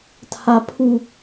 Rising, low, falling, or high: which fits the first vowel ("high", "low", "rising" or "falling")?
high